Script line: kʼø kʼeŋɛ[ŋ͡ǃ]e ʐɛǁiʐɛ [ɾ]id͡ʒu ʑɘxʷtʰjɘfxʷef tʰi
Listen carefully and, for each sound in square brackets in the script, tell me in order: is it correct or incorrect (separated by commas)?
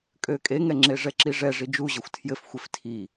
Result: incorrect, incorrect